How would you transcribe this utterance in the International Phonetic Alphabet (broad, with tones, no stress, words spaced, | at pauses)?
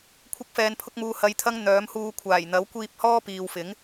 kʷʰɪ˧k̚fɛː˨npʰʊ˧k̚muː˨ hɐ˧jt̪ʰɐ˥ŋ n̪œː˨˥mhuː˧ kʷʰaː˨˩jn̪ɐ˨˥wkʷiː˧p̚ hɔː˥piː˨wfɪ˨˥ŋ